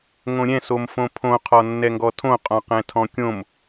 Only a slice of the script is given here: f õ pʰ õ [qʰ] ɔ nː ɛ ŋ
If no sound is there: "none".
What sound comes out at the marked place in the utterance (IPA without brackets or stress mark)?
qʰ